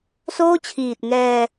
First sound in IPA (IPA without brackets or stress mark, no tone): s